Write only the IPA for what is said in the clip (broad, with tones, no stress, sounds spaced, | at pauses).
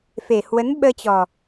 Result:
f e˨˩ h w ə˨˦ n ɓ əː˧ t͡ɕ ɔ˨˩